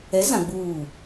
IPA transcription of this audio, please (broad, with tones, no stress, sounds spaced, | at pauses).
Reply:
ɛ˨˦ z ã˨ ɡ͡b uː˦˨